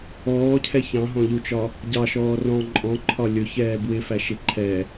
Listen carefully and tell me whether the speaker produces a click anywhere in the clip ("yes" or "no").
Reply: yes